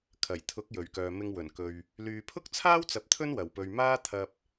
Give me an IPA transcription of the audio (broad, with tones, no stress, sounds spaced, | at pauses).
kʰ ɐ˨˩ j t̪ʰ ʊ˨˥ k̚ j ɵ˨˩ ɥ k œː˨ m ɪ˧ ŋ w ɵ˨˩ n k ɵ˨ ɥ | l yː˨ pʰ ʊ˥ k̚ t͡sʰ aː˥ w t͡s ɐ˨˥ p̚ t̪ʰ ɵ˥ n w ɐ˨˩ w p ɵ˨ ɥ m aː˥ t̪ʰ ɐ˧ p̚